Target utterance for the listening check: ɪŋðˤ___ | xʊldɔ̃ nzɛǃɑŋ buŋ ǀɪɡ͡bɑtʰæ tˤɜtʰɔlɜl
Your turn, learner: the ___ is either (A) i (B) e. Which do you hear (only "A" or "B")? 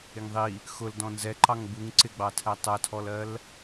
A